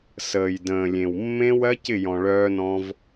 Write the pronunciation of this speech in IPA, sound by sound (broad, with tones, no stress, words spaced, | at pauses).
səː˨j də̃ː˨lʲẽ˨wmːẽ˦ wɜ˦ cɪ˦˨jɔ̃˨ ɭœː˧nɔ̃˧v